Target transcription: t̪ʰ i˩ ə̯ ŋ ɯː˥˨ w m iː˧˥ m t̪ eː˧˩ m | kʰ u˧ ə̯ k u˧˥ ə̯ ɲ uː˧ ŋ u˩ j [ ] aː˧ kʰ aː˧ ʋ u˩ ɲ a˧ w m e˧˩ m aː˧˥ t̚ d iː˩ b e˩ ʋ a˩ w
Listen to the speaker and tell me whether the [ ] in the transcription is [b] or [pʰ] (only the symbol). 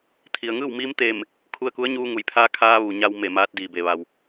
pʰ